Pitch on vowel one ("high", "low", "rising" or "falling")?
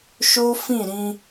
high